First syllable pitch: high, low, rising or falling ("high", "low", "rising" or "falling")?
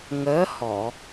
rising